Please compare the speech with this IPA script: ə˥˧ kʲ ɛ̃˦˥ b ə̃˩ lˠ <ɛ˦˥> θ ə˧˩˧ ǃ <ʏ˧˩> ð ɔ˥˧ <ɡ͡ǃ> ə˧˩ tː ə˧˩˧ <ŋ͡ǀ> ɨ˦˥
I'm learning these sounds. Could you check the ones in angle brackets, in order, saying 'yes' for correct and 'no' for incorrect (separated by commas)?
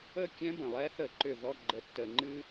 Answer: yes, yes, yes, no